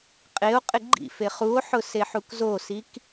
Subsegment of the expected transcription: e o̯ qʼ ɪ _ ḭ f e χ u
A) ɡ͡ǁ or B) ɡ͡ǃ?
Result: B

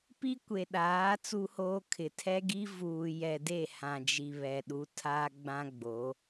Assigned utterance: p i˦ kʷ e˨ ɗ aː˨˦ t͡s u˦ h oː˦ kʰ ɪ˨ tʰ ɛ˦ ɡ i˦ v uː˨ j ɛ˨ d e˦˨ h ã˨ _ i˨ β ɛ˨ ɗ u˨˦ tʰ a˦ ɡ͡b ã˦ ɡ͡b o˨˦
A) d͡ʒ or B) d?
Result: A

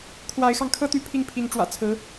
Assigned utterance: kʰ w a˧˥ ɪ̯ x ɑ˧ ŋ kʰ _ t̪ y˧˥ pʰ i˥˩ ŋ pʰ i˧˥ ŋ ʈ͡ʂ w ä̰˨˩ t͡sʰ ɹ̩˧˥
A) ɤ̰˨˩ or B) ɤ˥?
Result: B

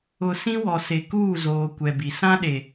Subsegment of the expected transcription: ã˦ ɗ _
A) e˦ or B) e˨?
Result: B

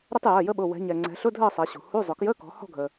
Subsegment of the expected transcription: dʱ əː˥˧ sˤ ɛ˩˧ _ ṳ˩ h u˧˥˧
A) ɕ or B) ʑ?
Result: A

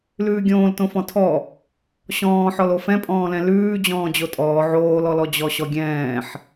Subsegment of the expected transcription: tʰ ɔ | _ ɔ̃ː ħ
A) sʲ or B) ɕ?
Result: B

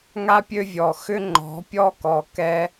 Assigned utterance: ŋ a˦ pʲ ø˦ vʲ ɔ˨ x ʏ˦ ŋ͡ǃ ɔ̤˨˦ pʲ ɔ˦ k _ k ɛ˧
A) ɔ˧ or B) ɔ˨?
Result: B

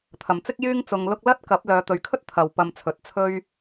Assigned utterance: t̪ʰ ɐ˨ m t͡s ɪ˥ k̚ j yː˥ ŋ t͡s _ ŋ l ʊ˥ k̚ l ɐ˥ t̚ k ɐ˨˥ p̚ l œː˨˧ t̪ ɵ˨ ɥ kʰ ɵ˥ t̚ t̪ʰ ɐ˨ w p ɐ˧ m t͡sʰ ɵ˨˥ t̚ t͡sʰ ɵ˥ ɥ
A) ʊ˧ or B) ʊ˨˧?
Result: A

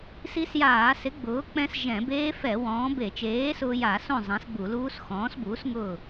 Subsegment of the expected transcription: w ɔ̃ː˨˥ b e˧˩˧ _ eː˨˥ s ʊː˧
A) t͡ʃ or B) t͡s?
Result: A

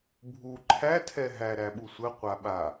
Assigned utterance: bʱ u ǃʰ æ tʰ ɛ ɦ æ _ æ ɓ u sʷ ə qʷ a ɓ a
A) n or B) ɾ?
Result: B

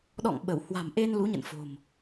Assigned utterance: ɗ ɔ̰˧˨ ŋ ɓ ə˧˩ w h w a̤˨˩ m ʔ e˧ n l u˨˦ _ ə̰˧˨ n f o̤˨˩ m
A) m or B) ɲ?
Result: B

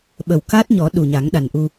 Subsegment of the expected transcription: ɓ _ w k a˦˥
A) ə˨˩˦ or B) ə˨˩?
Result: B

